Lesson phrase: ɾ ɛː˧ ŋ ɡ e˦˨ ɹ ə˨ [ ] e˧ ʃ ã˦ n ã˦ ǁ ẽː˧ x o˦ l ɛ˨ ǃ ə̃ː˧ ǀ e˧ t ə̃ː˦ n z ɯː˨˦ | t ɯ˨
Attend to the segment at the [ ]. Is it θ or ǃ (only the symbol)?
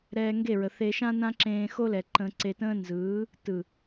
θ